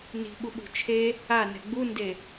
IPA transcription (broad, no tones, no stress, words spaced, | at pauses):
ni̤ɓuɓṳ t͡ʃʰe | anɛ̤ ɡ͡bunde